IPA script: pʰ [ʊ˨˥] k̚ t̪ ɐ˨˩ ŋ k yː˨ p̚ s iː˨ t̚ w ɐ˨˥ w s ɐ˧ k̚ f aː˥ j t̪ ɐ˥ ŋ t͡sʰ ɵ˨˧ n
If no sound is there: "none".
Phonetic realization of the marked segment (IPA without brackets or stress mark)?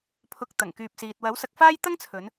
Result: ʊ˨